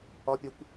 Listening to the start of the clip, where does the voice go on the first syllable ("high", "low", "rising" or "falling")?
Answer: high